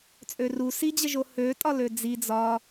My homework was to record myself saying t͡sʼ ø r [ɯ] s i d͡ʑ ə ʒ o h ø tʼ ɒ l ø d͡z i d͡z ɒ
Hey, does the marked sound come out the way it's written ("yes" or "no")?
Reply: no